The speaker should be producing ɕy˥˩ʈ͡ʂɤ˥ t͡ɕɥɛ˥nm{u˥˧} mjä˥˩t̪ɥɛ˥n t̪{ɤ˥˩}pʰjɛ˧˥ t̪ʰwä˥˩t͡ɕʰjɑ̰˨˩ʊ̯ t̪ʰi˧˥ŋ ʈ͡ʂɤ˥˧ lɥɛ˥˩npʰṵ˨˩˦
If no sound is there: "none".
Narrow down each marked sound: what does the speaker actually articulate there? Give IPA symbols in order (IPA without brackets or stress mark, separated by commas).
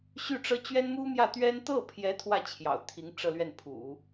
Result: u˥, ɤ˥˩